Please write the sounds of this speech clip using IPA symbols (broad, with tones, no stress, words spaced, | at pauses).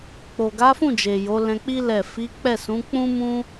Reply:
k͡po˨ɡa˨˦fũ˦˨d͡ʒe˨ jo˨˦lɛ̃˧k͡pi˦ lɛ˦˨ fi˨˦ k͡pɛ˦˨ sũ˨˦k͡pũ˦mũ˦